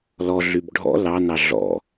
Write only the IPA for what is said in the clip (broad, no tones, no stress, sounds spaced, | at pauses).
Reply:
l ɔ ɮ y b ɖʱ ɔ̰ l ɑ n ɑ ɮ ɔ̰